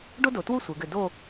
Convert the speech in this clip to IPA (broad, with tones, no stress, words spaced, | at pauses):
ɖo˥do˩˧twu˥˧ sʷɘ˩˧ɡɘ˧˩do˥˧